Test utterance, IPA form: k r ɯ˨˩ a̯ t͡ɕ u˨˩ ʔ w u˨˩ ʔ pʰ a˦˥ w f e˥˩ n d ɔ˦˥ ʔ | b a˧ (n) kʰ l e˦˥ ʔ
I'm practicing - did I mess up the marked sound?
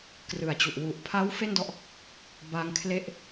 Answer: yes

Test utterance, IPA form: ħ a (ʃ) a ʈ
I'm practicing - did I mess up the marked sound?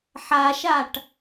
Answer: no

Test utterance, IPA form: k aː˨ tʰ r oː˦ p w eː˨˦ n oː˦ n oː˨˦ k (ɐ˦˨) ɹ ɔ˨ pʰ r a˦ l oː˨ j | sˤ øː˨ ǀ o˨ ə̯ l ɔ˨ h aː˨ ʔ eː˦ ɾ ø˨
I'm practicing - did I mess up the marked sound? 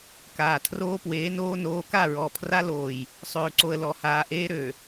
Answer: yes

